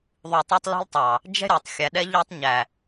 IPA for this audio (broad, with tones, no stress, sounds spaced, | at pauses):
ðˤ u˨ tˤ ɑ˦ tˤ l ɔ̤˦ l tˤ ɑ˨ | d͡ʒ ɛ̤˦ ɾʲ ɔ˨ tˤ xʲ æ˨ ɗ ɛ˦ ʎ æ˦ tˤ ɲ æ˨